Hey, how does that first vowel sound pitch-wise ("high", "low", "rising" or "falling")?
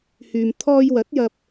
low